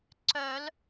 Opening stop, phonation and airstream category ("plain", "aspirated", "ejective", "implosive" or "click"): click